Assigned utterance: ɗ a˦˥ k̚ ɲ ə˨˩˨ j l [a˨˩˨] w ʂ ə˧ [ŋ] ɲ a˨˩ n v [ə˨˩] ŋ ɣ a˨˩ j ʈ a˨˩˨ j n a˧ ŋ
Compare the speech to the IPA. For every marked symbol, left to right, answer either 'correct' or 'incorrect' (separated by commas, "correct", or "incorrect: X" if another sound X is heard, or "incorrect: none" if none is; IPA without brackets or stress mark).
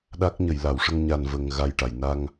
correct, correct, correct